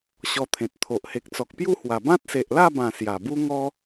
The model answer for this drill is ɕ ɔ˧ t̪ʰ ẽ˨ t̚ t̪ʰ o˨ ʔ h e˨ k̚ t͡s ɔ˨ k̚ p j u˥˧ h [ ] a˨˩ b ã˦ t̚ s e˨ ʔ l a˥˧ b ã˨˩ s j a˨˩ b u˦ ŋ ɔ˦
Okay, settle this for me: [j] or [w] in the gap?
w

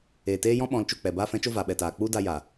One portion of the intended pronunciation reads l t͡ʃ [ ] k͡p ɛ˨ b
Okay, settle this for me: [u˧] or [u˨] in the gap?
u˨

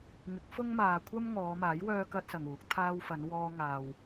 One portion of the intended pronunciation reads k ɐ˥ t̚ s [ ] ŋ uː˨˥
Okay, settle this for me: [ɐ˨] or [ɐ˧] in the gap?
ɐ˨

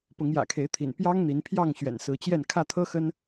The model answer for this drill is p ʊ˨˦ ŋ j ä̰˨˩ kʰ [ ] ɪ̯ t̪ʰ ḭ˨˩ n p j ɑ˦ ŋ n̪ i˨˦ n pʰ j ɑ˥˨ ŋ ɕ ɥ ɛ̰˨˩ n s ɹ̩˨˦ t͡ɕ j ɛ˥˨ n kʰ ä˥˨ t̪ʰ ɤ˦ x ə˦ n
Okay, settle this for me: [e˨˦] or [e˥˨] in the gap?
e˨˦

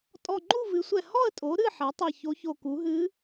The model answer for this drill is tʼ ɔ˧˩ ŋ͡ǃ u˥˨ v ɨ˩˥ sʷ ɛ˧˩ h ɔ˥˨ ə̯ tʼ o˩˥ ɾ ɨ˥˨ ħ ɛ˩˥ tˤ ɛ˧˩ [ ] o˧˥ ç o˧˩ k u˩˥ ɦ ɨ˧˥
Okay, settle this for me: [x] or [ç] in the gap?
ç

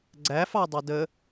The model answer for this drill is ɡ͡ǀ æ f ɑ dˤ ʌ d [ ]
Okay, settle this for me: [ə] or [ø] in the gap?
ə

